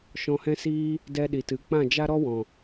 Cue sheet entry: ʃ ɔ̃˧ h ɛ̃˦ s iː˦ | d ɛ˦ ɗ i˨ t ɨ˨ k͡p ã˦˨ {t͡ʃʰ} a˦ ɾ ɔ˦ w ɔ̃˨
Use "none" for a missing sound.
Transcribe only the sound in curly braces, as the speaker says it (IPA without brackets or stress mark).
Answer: d͡ʒ